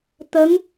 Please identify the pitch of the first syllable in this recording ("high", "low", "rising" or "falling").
rising